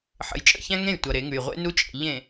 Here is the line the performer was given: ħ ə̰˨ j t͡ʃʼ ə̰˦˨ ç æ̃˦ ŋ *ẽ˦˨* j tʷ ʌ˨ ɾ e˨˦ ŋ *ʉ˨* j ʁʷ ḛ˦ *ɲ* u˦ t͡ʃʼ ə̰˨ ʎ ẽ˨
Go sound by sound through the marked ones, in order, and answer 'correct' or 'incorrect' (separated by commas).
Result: correct, correct, incorrect